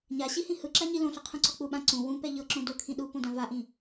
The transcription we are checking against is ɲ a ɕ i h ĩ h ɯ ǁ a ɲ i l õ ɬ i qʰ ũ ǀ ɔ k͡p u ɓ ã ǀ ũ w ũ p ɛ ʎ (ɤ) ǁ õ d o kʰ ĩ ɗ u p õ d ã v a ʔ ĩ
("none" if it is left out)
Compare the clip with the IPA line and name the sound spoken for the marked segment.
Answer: ɤ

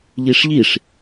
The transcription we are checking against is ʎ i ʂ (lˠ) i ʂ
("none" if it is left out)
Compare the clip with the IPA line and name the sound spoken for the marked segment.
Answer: ʎ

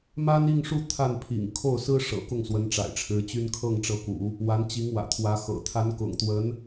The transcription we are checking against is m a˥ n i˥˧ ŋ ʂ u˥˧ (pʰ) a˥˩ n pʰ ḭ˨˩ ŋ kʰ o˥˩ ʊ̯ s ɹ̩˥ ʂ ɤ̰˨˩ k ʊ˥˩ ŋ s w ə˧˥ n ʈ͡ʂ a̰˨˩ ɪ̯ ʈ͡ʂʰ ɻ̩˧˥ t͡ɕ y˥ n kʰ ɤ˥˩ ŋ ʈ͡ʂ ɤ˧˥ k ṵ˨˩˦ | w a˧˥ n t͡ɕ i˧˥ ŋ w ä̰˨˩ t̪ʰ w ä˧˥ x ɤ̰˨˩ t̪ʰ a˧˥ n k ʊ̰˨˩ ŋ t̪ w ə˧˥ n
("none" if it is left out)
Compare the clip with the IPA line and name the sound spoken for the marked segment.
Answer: t̪ʰ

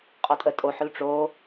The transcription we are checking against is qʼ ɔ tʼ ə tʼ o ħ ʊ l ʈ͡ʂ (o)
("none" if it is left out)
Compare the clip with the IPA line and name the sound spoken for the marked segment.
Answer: o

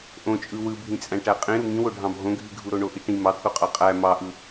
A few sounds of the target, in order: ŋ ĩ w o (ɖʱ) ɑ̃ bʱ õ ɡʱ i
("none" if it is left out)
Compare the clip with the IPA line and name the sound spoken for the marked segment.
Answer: ɖʱ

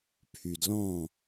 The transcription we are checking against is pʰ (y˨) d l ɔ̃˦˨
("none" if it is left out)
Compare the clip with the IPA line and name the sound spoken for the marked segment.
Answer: y˨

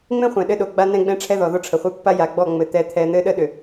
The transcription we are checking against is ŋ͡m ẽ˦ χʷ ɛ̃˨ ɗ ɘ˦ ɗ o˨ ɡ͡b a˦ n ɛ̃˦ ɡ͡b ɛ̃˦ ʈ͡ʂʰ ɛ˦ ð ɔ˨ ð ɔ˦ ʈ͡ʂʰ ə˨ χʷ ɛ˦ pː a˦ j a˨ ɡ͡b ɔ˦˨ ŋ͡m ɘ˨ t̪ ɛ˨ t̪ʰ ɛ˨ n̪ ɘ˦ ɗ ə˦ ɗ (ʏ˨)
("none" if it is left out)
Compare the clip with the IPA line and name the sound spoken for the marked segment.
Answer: ʏ˨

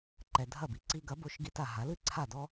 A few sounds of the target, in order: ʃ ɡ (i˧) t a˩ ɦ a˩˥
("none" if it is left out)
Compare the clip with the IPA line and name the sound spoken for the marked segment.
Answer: i˧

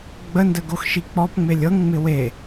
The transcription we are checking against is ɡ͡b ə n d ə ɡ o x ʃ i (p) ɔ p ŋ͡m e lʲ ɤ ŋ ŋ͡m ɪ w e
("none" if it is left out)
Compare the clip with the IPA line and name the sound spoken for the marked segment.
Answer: k͡p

